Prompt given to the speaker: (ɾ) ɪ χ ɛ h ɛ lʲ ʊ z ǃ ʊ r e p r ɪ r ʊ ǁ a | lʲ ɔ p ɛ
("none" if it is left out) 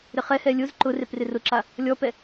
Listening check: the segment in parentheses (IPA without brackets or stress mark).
ɾ